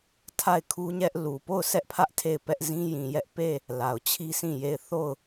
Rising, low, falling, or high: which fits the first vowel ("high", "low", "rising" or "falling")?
falling